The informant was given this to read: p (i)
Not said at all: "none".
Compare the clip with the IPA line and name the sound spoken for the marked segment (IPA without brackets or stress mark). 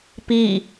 i